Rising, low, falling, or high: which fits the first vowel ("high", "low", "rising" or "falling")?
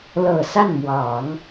low